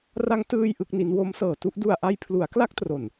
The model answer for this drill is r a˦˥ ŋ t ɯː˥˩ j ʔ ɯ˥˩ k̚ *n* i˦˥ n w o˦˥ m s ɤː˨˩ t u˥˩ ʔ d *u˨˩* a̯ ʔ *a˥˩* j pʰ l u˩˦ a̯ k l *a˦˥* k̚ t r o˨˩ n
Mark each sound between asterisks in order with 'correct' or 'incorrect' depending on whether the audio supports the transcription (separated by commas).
correct, correct, incorrect, correct